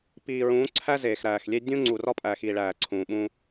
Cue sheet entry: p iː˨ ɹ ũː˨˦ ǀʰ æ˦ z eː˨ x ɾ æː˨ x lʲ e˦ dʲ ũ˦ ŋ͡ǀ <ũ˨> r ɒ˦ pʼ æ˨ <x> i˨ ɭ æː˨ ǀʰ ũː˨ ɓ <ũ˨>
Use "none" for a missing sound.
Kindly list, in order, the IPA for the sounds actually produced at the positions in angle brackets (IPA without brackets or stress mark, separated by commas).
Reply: u˨, x, ũ˦